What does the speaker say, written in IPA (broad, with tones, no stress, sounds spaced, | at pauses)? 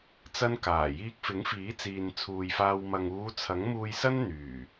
t͡s ɐ˥ n k aː˨˩ j iː˧ k̚ f ɪ˨˥ ŋ f iː˨˥ t͡s iː˨ n t͡sʰ uː˨ j f aː˧ w m ɐ˨ ŋ uː˨˧ t͡sʰ ɐ˨˥ ŋ m uː˧ j s ɐ˥ n n̪ yː˨˩